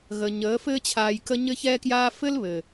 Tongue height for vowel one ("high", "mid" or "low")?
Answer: mid